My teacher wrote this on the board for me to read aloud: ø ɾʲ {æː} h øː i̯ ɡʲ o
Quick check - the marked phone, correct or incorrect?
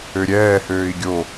incorrect